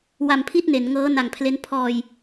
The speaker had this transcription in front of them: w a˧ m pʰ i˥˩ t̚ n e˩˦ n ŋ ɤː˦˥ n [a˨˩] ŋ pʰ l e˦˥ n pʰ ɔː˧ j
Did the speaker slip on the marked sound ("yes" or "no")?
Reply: no